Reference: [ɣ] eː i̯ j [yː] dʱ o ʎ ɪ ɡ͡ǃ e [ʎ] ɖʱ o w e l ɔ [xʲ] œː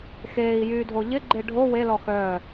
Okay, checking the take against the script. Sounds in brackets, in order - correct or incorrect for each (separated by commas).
incorrect, correct, incorrect, incorrect